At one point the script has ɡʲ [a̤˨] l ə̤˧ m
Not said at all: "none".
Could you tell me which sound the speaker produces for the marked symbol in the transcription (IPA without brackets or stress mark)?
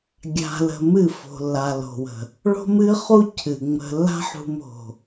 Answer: a̤˧